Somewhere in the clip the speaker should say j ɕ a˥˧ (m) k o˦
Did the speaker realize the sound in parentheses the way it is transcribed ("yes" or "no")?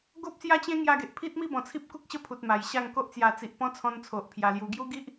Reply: no